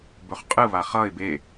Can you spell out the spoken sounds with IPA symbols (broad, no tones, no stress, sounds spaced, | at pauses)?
b ɵ χ qʼ ɯ β a χ ʌ ɪ̯ b e